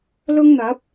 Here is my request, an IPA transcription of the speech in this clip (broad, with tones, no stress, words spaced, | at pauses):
lʊ˥ŋn̪ɐ˨˥p̚